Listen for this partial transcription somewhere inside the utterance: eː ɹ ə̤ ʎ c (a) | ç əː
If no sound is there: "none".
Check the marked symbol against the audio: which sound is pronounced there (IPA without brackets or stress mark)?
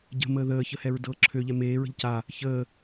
a